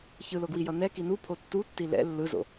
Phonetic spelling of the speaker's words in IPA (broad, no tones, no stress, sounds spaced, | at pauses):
ç ɯ l o ɡ w i j ʌ n ɛ k i n u pʰ o tː u tː i l ɛ̰ lː ɯ z o̰